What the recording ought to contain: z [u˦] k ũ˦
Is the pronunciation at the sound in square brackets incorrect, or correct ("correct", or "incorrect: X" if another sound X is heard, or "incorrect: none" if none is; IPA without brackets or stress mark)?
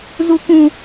correct